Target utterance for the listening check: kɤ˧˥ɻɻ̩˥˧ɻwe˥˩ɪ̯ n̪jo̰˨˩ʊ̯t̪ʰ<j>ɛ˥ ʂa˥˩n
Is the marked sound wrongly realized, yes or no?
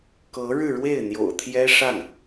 no